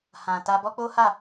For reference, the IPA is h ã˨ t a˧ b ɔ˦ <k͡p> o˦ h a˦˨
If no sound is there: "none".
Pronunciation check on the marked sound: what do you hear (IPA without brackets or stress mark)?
k͡p